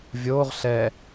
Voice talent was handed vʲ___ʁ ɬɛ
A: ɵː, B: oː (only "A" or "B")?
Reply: B